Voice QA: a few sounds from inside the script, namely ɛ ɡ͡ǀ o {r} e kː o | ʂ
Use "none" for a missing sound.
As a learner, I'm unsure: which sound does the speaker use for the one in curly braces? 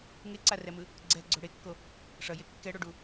ɽ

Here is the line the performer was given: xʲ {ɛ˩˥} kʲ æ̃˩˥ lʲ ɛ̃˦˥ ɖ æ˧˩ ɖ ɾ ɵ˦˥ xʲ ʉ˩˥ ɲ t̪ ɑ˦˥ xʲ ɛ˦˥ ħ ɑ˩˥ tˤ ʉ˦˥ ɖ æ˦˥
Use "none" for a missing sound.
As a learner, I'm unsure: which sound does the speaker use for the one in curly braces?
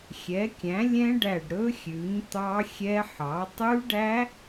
ɛ˩˥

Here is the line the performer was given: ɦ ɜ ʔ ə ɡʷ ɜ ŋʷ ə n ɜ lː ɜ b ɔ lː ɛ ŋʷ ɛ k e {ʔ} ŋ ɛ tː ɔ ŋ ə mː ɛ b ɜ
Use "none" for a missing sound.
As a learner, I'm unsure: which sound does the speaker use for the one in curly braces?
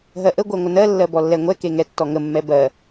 none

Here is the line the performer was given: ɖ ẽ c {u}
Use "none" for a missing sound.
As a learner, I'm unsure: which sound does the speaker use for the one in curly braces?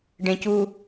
u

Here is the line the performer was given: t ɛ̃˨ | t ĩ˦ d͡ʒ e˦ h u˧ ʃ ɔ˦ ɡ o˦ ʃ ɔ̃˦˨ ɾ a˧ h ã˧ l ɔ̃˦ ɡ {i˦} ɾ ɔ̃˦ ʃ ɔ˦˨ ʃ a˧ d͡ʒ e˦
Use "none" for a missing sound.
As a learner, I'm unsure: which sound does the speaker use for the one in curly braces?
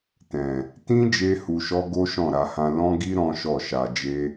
i˦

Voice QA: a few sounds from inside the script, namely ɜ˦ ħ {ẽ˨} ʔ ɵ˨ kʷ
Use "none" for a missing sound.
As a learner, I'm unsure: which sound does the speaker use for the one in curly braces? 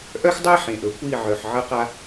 ẽ˨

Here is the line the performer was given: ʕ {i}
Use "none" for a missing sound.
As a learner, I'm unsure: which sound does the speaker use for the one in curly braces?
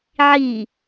i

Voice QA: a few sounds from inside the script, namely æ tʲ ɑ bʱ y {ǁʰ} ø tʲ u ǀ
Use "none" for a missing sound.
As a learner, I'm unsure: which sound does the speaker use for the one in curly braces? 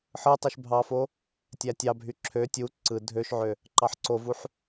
ǁʰ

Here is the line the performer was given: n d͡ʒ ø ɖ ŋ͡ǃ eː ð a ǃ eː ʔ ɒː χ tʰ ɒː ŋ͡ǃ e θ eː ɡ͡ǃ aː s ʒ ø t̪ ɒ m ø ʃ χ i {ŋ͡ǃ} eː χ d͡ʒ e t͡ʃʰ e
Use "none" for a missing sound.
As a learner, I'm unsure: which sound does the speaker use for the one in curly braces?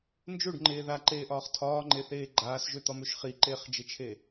ǃ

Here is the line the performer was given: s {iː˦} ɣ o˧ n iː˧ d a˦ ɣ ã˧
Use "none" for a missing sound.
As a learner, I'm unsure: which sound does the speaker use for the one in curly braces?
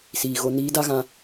iː˨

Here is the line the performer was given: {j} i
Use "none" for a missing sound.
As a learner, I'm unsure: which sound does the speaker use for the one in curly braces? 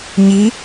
ɲ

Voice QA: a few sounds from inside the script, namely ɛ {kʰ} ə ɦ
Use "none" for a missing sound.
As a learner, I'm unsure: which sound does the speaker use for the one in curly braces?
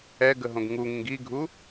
ɡ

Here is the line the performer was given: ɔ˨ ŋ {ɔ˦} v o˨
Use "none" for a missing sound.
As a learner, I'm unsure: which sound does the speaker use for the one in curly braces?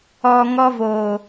ɔ˦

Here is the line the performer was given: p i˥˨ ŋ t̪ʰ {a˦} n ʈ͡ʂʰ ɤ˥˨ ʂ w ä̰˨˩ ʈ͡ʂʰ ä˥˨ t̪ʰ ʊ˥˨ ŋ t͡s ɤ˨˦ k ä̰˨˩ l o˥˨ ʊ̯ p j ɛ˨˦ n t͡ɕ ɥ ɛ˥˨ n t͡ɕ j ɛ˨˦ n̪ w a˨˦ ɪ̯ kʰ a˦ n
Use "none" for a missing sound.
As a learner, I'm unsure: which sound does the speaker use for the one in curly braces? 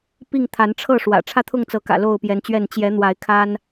a˨˦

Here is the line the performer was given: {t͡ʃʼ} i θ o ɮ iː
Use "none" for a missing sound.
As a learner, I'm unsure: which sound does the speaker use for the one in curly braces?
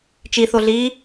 t͡ʃ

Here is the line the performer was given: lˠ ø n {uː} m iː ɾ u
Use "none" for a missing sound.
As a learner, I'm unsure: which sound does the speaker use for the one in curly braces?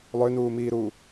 uː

